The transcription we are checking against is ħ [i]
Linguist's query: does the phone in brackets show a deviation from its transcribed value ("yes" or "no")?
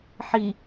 no